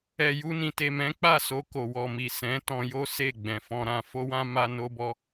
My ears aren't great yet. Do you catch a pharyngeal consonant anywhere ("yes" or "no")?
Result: no